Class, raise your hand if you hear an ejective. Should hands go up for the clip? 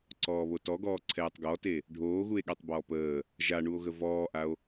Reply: no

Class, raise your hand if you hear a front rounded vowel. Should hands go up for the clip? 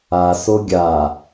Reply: no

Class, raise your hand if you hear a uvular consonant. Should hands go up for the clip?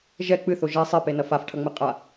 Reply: yes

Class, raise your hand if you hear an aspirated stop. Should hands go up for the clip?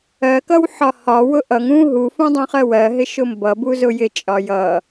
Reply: no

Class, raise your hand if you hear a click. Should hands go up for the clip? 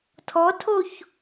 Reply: no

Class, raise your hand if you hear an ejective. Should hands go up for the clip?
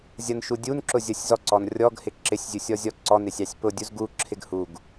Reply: no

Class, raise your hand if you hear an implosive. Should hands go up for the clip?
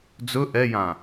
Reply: no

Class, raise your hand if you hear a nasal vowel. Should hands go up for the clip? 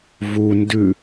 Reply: no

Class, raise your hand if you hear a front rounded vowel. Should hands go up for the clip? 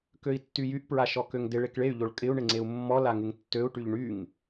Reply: yes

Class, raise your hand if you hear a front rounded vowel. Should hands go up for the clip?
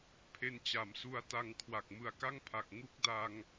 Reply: no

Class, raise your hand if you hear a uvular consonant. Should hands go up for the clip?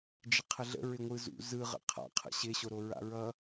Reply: yes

